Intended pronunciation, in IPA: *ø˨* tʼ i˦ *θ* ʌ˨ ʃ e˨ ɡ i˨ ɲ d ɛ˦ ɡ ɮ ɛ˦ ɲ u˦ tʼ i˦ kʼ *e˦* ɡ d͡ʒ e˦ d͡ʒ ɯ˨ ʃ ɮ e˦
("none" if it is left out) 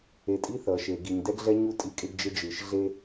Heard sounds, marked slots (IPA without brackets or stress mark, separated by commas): e˨, θ, e˦